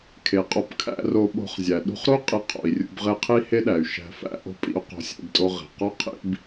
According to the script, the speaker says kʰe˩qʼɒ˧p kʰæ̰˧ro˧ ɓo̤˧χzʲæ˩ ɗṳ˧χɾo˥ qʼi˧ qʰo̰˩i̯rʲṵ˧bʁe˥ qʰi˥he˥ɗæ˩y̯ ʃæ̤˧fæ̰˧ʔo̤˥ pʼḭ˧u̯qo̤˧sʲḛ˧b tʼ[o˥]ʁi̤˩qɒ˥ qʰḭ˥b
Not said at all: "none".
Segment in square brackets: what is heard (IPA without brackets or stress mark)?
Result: o˧